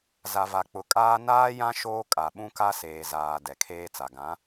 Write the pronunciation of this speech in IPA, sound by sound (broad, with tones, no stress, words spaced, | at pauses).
za˨va˨k͡pʊ˨kʼaː˦ naː˦jã˦ ʃoː˦kʼa˨ ɓũ˦ka˦ seː˨zaː˨ dɛ˨kʰeː˦t͡sa˨ ɡã˨˦